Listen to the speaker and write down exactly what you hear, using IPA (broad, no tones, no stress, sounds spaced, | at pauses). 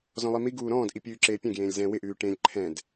z ɔ̃ lˠ i m i ɡ uː ɾ ɔ̃ː d ʔ i pʲ ʉː ǁ eː pʲ ɛ̃ ɡ j ẽː lʲ z ɛ̃ w ɪ ʔ ʉː ʈ ẽ lʲ ǃʰ ɛ̃ d